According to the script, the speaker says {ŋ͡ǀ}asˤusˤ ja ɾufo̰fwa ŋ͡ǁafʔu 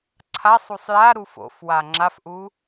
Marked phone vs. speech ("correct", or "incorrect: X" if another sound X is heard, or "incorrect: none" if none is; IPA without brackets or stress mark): incorrect: ǀʰ